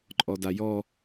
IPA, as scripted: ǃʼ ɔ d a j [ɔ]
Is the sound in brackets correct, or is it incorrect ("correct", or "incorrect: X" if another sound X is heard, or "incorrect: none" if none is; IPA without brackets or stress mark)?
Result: correct